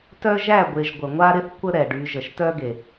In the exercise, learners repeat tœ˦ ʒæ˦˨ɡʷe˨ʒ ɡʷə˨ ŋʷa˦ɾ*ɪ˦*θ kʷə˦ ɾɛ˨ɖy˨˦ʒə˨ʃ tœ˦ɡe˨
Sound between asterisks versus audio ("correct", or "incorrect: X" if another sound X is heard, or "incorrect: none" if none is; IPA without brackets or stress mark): correct